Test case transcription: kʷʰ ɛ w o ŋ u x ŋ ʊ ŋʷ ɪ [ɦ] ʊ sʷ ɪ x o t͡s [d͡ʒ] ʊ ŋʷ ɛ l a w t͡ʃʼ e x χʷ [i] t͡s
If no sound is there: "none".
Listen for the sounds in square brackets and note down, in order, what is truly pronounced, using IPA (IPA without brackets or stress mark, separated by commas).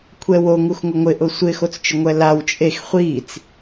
ʔ, t͡ʃ, i